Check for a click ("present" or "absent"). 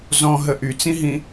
absent